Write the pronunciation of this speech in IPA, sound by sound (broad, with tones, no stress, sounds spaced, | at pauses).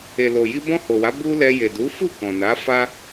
e˨ l o˨ j i˧ b ɔ̃˧ h o˨ w a˨˦ b u˦ l ɛ˧ j e˨ d u˨˦ f u˦˨ k ɔ̃˨ n a˨˦ f a˦